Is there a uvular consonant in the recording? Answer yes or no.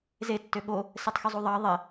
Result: no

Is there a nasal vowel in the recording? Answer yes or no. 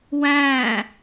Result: yes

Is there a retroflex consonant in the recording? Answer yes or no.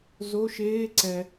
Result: no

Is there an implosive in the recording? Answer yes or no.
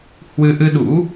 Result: yes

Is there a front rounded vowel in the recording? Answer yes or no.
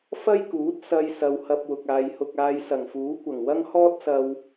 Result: no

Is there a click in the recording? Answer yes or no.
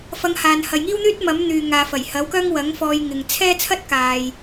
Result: no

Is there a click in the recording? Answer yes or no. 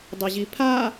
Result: no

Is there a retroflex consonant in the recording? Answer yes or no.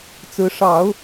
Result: yes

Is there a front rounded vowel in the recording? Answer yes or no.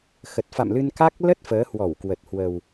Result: no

